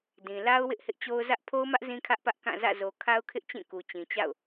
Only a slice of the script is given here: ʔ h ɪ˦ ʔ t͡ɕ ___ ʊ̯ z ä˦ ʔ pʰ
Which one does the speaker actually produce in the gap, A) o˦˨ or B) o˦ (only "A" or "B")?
B